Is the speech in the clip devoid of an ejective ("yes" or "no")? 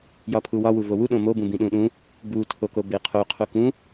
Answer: yes